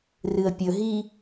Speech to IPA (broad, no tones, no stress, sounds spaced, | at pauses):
r ɨ ə̯ pʲ ɵ ɦ i